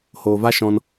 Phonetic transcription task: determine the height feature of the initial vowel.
mid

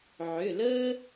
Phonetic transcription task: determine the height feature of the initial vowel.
high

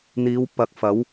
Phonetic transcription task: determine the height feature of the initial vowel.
high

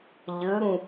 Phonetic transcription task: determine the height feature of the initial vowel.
high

